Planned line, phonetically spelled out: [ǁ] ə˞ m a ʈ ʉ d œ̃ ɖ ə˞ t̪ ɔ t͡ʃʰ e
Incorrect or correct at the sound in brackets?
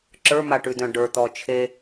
correct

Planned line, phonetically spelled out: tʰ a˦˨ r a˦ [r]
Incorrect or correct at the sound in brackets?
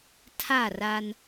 incorrect: n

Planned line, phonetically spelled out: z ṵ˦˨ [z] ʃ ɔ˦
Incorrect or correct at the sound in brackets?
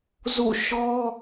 incorrect: none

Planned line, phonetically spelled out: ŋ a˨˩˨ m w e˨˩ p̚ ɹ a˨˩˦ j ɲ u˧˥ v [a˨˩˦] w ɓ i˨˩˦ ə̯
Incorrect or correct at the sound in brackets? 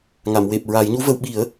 incorrect: ə˨˩˦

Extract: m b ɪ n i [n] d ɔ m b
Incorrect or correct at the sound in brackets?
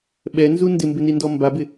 correct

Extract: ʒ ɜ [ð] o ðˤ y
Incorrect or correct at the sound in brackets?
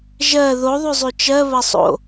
correct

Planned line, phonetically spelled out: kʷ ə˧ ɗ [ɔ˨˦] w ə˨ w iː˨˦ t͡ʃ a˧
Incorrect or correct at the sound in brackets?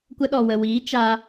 incorrect: ɔ˨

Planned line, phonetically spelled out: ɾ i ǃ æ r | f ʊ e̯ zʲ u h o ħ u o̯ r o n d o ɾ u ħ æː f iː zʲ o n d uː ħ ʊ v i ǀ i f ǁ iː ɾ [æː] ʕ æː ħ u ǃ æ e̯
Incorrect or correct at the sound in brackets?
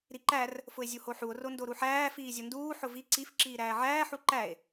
correct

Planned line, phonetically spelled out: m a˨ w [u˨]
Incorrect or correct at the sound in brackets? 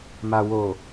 incorrect: o˨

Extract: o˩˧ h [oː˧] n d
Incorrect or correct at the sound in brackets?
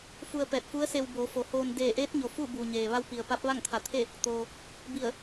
correct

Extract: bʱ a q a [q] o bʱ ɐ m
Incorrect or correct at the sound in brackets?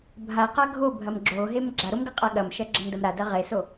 incorrect: ɡʱ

